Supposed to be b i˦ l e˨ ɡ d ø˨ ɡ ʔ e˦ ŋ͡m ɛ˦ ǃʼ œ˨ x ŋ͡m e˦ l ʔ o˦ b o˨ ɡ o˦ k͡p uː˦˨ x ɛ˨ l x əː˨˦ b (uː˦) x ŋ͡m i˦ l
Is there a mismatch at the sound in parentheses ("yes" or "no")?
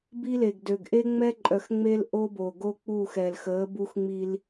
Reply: yes